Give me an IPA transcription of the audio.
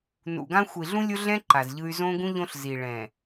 nṵ˨ɡã˦ xʷi˨ɮũ˦lʲo˦ɮɛ̃˦ ǃa˨zʎɯ˦y̯ zõ˦ɡũ˦ ʎõ˦ɬzi˨ ɭɛ̃˨

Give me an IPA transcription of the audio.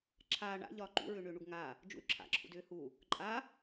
ǁʰaː ɳa̰ ʎɒːǃṵ ɹʏːɳʏːɳuɡŋaː | d͡ʒṵy̯ǁʰa̰ ǁʰṵdʏːhu | ǃʼa

